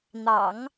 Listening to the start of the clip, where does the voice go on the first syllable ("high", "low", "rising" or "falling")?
low